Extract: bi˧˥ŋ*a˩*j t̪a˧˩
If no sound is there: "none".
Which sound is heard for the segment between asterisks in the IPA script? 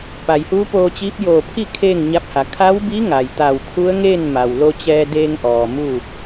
a˩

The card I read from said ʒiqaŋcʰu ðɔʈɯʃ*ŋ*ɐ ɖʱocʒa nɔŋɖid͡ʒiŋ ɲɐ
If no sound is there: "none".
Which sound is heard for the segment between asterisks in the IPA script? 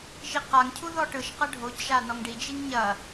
q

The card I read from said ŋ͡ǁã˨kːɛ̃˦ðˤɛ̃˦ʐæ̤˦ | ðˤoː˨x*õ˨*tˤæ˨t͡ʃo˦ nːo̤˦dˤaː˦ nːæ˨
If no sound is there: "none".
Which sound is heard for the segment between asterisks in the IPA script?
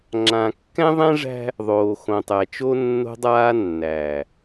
õ˨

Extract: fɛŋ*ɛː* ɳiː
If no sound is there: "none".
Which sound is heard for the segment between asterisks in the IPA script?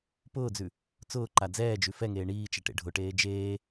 eː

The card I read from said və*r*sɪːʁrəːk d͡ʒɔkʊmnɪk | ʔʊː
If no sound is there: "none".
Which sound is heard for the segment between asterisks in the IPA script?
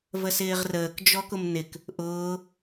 none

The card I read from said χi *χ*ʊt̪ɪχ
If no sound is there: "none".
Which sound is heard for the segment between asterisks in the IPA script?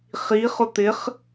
χ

